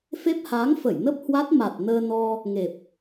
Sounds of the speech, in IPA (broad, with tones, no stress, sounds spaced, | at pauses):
f e˦˥ p̚ h aː˨˦ ŋ f ə˧˩ j n ə˦˥ p̚ h w a˦˥ t̚ m a˨˩ t̚ n əː˧ n ɔ˧ | ŋ e˨˩ p̚